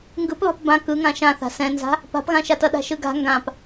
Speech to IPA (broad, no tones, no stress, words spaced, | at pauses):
ŋɡɯpβa̤p bã kɯŋã ʃãθa̤ sɛ̃nza̤ | pa̤pɣãʃatʌ ɗa̤ʃɯɡa̤ ŋɡãp